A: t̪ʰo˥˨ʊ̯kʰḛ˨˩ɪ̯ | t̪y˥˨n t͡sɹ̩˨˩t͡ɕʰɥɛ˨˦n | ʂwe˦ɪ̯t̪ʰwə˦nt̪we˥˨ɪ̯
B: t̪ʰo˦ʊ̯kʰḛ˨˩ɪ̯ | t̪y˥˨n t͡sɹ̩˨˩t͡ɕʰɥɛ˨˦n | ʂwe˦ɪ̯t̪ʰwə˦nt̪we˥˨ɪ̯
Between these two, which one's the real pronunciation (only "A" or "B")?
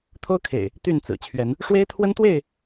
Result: B